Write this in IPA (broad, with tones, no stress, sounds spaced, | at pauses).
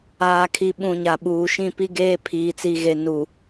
aː˨ kʰ i˨ ɓ ũ˨ ɲ a˨ ɓ uː˨ ʃ ĩ˦˨ p i˦ ɡ eː˦ pʰ iː˨ t͡s i˨ ɣ e˨ n u˨